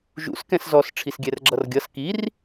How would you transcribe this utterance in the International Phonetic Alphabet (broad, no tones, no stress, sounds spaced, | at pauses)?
ʒ ṵ s k ɛ̃ s z ɔ s ʈ͡ʂʰ i s ɡʲ ɛ r ɡ͡ǁ ʌ r ɡʲ ʌ s k i r